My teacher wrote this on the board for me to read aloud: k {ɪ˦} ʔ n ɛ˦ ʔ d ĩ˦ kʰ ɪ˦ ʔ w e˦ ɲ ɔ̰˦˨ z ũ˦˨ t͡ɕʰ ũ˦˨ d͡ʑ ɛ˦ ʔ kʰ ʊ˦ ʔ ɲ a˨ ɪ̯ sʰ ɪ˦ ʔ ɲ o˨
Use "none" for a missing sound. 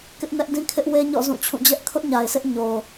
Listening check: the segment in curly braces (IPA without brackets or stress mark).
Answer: ɪ˦